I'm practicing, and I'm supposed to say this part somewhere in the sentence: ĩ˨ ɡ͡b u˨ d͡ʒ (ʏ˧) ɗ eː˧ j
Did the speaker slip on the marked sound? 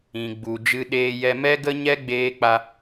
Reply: yes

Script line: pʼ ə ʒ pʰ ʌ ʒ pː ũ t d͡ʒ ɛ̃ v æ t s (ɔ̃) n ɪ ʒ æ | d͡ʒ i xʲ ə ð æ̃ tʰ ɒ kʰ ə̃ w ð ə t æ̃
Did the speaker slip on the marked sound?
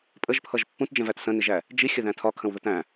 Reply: yes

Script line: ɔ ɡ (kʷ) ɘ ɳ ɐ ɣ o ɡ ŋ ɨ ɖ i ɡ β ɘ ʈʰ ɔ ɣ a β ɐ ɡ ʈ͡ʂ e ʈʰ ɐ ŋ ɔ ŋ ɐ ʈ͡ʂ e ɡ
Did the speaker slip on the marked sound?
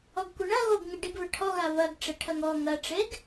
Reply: no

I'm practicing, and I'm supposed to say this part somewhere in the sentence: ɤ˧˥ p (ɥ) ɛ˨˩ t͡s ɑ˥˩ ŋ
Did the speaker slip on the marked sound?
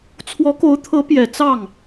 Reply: yes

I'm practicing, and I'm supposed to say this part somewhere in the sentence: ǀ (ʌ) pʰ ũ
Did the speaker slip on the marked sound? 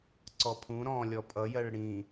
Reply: yes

